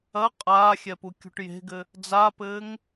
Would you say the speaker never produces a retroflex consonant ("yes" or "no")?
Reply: no